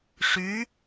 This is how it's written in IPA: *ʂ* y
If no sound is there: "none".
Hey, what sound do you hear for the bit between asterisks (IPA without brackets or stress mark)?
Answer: ʂ